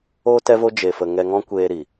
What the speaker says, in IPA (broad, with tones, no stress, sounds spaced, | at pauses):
o˧ t ɛ˦ v o˦ d͡ʒ e˧ f ə˧ ŋ ɛ˧ ŋ ɔ̃˦ kʷ eː˧ ɾ i˨